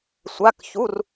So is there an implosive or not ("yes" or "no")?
no